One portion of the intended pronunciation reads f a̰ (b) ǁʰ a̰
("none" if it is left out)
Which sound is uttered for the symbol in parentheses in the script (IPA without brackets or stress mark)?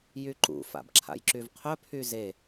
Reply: b